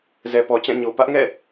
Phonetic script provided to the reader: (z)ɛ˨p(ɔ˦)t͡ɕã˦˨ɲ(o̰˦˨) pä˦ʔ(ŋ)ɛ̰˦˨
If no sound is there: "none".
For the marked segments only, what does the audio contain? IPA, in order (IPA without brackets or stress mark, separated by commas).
z, ɔ˨, o˨, ŋ